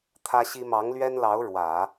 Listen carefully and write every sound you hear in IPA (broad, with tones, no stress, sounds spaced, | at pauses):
t̪ʰ ä˥ ɕ i˥ m ɑ˧˥ ŋ l ɥ ɛ˥ n l ɑ˧˥ ʊ̯ ɻ w ä˨˩˦